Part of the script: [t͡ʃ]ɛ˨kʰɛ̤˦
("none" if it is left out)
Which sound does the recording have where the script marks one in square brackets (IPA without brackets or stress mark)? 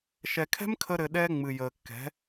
ʃ